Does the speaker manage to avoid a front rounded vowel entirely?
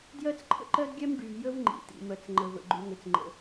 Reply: no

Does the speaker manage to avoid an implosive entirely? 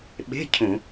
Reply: no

